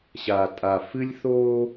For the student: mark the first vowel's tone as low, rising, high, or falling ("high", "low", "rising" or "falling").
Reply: low